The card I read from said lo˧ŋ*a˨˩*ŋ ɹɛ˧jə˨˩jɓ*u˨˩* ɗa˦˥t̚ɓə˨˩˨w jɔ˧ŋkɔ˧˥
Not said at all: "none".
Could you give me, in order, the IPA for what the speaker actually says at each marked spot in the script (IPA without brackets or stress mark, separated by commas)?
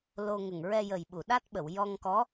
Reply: ə˨˩, u˨˩˨